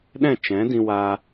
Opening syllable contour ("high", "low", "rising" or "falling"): falling